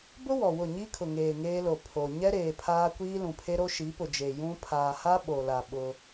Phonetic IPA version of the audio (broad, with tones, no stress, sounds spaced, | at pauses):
b ʊ˦ w ɔ˨ w ʊ˦˨ ɲ i˦ kʰ ʊ˨ ŋ eː˨ ŋ eː˦ l o˨ pʰ o˨ ɲ ɛ˦ ɾ eː˨ pʰ aː˦ kʷ iː˦ l ũ˨ pʰ e˦ ɾ o˦ ʃ i˨˦ p ʊ˨ d͡ʒ e˨ j ũ˦ pʰ aː˨ h a˦ ɓ o˨ l a˨ ɓ ʊ˦